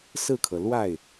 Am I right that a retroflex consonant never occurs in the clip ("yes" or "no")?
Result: yes